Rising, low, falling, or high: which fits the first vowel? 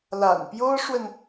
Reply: low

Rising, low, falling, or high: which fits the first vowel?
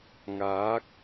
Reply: rising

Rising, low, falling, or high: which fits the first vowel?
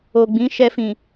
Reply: low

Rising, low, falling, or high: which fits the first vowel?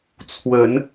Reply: rising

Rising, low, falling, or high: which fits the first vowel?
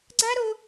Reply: high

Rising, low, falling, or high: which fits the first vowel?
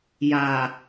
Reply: low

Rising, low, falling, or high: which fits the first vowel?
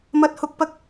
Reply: rising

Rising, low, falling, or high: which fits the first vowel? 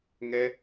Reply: high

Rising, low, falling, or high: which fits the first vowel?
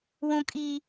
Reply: high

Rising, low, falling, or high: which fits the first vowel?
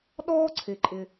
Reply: high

